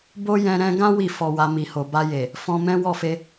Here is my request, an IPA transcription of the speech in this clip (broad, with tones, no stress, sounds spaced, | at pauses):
b o˦ j ɛ̃˧ ɾ ɛ̃˧ ɡ ã˦ w i˦˨ f ɔ˧ w a˧ m i˨ h o˨ b a˧ j e˨ | f ɔ̃˧ m ɛ̃˦ w ɔ˦˨ f e˧